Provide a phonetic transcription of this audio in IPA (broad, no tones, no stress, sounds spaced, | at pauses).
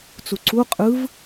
t͡s u ǀ u qʼ ɯ v